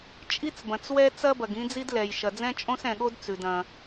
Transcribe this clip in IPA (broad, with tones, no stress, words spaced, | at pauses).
t͡ʃʼi˥t͡sbɐ̃˩t͡swɛ˥ t͡sɐ˥bɐ˩ɡ ĩ˥d͡zi˥dlɛ˩j ʃɐ˩d͡zɛ̃˥t͡ʃʼõ˥s ɛ̃˩ɠo˥d t͡sʉ˩d ɐ̃˩